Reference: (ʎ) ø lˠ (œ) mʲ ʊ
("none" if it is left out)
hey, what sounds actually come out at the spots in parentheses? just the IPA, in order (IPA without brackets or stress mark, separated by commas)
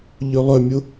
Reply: ʎ, œ